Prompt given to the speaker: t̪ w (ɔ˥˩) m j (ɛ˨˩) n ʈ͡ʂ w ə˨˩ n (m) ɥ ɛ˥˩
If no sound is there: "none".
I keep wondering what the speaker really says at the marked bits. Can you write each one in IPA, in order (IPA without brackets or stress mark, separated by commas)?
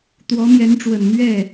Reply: ɔ˧˥, ɛ˧˥, m